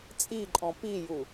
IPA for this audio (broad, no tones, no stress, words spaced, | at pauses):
t͡sʼiǃʼɔ̃ piju